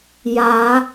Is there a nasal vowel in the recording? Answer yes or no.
no